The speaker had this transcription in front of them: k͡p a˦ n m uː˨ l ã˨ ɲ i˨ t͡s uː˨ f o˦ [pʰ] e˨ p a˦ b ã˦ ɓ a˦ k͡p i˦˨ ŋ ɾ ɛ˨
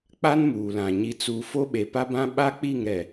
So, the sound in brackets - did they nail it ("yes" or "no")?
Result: no